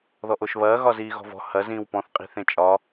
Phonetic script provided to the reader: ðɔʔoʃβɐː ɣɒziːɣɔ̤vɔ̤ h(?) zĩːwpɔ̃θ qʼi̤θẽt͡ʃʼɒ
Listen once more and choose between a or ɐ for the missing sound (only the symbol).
ɐ